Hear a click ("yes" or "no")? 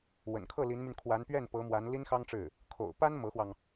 no